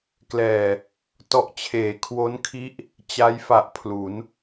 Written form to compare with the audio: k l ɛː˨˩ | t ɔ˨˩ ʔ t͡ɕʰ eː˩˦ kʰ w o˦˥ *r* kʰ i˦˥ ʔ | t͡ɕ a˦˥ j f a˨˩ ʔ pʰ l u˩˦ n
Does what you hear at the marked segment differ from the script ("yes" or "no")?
yes